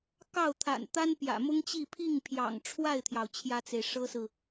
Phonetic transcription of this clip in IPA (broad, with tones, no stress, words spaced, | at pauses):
kɑ˥˩ʊ̯t̪ʰa̰˨˩n t̪a˥npjä̰˨˩mʊ˥ŋt͡ɕi˥˧ pʰi˥˩ŋpʰjɑ̰˨˩ŋʈ͡ʂʰwa˥˩ɪ̯t̪ʰjɑ˩ʊ̯ t͡ɕʰjä˥t͡se˨ɪ̯ʂɤ˥sɹ̩˨